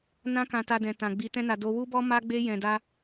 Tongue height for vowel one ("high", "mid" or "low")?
low